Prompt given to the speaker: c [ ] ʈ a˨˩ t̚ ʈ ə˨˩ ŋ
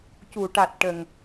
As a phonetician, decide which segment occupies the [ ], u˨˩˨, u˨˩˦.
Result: u˨˩˨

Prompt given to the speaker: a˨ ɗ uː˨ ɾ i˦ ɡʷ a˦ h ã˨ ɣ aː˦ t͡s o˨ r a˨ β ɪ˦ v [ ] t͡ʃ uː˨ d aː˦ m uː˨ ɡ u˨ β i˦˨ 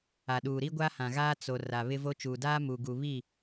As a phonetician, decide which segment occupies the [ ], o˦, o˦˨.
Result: o˦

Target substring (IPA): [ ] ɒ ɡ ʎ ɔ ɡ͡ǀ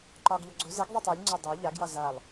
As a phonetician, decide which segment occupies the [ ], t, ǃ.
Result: ǃ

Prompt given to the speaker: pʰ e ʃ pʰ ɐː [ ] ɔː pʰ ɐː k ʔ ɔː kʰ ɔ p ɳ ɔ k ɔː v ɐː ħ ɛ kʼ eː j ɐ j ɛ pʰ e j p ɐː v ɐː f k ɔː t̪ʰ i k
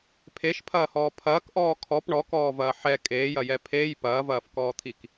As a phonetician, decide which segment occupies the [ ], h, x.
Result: h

